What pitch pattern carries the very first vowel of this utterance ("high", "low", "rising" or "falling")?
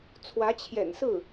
rising